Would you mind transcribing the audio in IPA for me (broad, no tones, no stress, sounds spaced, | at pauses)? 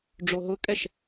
ɖ͡ʐ o ɦ ʊ kʼ ɛ ʃ